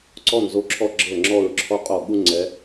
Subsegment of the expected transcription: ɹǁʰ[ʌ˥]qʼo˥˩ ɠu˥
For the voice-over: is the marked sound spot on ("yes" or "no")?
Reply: no